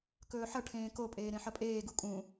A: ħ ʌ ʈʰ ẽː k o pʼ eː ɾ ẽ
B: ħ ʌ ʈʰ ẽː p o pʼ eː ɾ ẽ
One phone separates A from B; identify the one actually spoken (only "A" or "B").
A